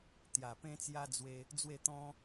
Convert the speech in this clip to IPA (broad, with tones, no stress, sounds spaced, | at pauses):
t̪ j a˨˩ p ẽ˦ t͡s j a˦ d͡z w e˧ | d͡z w e˥˧ t̪ ɔ̃˦